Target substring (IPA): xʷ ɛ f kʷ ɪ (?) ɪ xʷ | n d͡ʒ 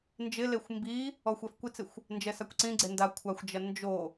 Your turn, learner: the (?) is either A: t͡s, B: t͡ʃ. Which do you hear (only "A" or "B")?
A